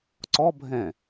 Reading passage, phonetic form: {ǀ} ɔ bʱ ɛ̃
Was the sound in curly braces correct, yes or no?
yes